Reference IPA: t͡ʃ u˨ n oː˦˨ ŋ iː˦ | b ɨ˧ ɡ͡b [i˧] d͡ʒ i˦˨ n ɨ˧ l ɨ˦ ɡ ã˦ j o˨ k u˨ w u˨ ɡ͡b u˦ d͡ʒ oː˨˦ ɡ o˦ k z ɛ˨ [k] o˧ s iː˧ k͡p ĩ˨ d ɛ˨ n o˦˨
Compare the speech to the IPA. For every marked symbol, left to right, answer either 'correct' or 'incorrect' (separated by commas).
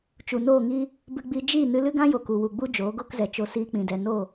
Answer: correct, incorrect